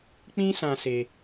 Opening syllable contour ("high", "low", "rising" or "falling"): high